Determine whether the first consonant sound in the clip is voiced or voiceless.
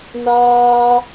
voiced